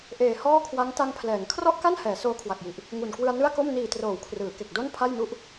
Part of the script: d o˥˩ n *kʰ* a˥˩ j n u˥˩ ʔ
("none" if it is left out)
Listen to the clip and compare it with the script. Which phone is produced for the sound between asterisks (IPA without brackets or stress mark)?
pʰ